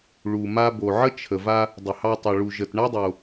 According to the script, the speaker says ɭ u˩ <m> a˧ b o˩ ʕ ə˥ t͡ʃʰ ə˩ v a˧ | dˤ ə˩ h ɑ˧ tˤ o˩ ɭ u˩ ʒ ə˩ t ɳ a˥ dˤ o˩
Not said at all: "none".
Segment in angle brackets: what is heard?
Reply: m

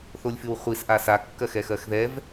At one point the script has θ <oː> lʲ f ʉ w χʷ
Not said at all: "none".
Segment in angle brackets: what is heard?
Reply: o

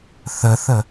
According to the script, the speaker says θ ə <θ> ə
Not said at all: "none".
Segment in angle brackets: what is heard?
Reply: θ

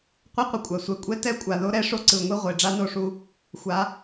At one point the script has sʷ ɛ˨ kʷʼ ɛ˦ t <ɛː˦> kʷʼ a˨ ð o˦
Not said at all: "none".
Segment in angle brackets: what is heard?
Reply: ɛ˦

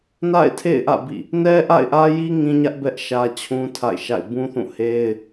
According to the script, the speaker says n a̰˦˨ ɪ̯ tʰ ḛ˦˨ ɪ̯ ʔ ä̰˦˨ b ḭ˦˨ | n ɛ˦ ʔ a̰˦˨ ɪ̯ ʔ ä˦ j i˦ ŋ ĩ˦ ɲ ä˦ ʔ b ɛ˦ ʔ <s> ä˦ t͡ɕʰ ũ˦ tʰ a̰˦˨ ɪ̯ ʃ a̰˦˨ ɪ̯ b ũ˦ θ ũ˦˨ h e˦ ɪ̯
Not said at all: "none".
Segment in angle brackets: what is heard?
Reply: ʃ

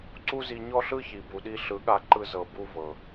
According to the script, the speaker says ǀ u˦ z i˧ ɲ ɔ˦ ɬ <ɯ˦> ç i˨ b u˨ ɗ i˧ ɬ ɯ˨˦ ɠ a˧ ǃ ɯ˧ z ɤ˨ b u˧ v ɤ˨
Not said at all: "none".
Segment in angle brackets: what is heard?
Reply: ɯ˦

